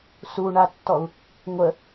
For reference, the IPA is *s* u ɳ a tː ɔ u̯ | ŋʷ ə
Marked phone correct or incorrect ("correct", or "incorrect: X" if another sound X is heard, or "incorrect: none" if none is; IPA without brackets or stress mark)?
correct